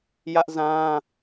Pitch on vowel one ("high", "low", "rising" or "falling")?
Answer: high